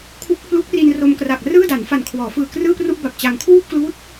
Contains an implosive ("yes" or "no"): no